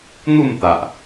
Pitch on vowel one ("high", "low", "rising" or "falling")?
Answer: falling